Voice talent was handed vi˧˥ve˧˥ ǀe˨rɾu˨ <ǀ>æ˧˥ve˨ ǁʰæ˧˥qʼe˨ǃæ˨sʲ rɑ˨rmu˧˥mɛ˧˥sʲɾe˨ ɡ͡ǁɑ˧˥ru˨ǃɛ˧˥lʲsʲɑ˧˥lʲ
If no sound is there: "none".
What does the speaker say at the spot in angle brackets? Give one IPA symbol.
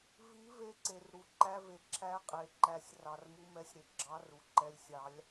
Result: ǃ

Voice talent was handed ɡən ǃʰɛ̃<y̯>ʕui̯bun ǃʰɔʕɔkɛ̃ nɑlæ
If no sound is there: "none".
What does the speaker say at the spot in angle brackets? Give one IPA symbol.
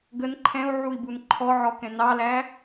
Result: u̯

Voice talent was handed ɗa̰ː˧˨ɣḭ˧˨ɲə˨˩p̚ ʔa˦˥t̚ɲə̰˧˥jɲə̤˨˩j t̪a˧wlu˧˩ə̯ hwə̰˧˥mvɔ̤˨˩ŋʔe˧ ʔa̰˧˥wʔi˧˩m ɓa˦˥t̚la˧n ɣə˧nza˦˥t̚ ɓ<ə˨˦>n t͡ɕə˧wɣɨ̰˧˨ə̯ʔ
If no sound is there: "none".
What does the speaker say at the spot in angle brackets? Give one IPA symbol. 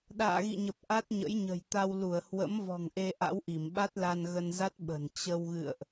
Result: ə̤˨˩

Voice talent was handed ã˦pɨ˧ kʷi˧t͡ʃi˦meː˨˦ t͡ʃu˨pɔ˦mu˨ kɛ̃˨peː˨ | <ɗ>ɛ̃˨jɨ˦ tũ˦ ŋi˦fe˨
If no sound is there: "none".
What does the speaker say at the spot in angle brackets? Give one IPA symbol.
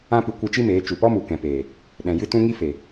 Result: ɗ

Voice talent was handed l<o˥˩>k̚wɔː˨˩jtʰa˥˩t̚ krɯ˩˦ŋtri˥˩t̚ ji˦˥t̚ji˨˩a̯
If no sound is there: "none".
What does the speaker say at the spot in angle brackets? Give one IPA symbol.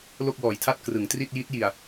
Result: o˥˩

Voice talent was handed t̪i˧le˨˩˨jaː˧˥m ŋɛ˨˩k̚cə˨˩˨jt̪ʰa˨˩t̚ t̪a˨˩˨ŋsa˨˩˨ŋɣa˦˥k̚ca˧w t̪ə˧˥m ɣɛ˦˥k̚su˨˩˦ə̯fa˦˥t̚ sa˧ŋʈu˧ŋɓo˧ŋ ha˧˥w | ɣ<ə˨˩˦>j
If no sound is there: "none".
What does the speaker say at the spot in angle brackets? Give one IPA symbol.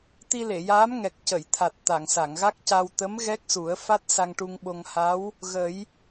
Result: ə˨˩˦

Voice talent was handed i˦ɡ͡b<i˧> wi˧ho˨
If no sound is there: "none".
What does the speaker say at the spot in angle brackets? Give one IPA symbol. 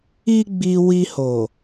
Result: i˧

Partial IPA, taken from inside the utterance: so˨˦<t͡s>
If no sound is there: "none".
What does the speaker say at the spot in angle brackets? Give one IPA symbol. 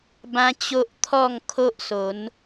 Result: n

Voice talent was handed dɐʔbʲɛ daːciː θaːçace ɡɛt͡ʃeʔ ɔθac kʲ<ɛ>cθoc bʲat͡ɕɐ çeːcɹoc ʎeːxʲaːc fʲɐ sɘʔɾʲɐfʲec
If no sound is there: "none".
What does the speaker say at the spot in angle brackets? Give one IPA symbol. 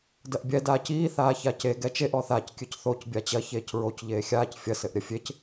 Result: ɨ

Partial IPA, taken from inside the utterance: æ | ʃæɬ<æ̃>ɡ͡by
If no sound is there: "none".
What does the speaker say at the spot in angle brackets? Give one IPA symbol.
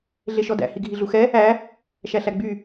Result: æ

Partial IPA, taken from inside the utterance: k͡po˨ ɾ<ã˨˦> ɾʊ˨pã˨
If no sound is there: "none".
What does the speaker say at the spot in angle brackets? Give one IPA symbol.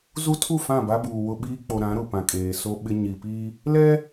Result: ã˨˦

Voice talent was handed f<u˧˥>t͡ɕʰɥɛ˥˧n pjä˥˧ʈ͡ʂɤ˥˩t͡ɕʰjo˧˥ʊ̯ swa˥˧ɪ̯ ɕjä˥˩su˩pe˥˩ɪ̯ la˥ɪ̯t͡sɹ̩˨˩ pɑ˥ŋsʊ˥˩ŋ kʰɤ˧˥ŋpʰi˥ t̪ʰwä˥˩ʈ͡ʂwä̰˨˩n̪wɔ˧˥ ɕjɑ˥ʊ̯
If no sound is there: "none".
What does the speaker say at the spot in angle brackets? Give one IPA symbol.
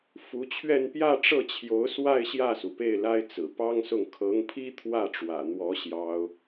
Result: u˧˥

